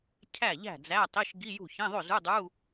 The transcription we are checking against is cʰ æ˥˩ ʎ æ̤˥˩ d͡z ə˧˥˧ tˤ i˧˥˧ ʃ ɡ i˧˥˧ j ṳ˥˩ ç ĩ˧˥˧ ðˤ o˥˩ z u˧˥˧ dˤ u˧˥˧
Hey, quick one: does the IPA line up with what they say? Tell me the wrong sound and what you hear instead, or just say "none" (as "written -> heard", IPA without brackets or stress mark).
ə˧˥˧ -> æ˧˥˧